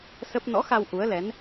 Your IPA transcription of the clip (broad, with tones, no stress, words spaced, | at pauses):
sə˦˥p̚ nɔ̰˧˥xa˧w ʔu˨˦ə̯lɛ˨˦n